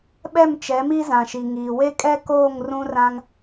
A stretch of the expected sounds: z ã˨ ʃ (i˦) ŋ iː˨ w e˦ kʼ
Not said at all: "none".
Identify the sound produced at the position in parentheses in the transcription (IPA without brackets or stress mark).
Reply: i˨